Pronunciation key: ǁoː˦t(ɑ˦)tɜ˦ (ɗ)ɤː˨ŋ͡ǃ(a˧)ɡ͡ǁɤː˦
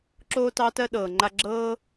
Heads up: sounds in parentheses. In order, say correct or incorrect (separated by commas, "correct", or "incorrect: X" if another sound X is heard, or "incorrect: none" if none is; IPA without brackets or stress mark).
correct, correct, correct